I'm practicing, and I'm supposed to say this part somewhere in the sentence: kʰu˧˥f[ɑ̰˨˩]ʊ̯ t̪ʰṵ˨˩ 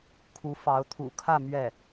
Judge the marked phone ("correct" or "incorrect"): incorrect